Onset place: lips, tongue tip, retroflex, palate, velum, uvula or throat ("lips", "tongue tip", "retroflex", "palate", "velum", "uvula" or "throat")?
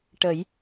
retroflex